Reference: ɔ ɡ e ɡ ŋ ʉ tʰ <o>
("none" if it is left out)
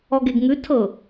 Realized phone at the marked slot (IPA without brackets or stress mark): ɤ